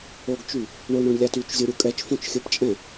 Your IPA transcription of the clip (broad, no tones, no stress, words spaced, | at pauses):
oɡt͡ʃy | ɳoɳɾõɳ lʲatyt͡ʃzʲo ɾʲukʼɛt͡ʃfõt͡ʃ xʲɘpt͡ʃʼɛ̃